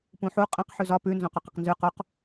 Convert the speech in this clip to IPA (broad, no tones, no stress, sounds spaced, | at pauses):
p ũ ħ u qʼ ə̃ q ħ ʉ z ɒ p ʉ n z õ q o q ə q n z ʉ q o q